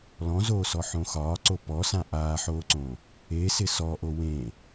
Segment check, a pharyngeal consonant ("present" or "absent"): present